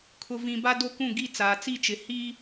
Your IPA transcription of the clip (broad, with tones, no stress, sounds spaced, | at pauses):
kʰ ʊ˨ v ĩ˨ b a˦ d o˦ k ũ˦˨ ɡ i˦˨ t͡s aː˨ t͡s i˦˨ t͡ʃ ɪ˨ h i˦